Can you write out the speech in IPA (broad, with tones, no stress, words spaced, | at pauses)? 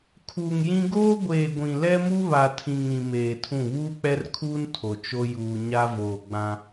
kʰuː˨ŋjĩ˦ ɡoː˦ ɡʷeː˨ɡʷĩ˨lɛ˦mu˦ βa˨tʰĩ˨ŋ ĩ˨ meː˨tʰũ˦˨ βuː˦k͡pɛ˦rkʰuː˦n tʰo˨t͡ʃo˦ juː˨ ɲa˦voː˨ɡ͡bã˦